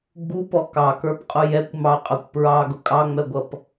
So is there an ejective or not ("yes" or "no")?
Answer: yes